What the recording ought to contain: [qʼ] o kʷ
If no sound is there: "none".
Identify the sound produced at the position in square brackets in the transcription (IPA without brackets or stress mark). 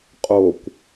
qʼ